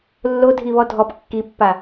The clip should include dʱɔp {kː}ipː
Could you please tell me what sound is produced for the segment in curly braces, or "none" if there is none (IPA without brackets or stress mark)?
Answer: kː